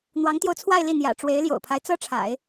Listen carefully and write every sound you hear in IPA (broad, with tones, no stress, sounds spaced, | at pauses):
n̪ w ɑ˧˥ ŋ t̪ j o˧ ʊ̯ t͡sʰ w a˥˧ ɪ̯ l i˥˩ n̪ j ä̰˨˩ ʈ͡ʂ w e˧˥ ɪ̯ l j o̰˨˩ ʊ̯ pʰ a˦ ɪ̯ t͡s ɤ˥ ʈ͡ʂʰ a̰˨˩˦ ɪ̯